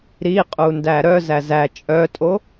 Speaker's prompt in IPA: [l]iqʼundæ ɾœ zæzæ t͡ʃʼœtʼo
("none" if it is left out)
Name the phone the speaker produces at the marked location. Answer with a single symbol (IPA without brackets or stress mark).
ɾ